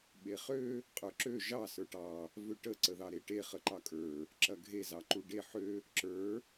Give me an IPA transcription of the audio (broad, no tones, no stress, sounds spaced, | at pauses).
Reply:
ɓ e χ ø | qʼ ə˞ ǁ ø ʒ ɑ s ə˞ ʈ ɑ | v ø ʈ ə ǀ ə ð ɑ ɾ e ʈ e χ ə ǃ ɑ kʼ ə˞ | ǁ ɐ ɡʱ e z ɑ ǃ u ɖ e ħ ø | ǁ ə˞